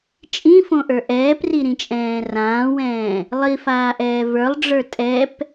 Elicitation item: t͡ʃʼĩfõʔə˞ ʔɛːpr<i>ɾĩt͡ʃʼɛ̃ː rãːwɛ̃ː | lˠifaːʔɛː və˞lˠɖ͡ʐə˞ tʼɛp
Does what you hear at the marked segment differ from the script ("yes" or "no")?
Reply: no